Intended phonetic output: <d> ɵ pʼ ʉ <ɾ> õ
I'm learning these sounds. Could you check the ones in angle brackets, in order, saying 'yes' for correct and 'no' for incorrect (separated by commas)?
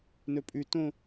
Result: no, no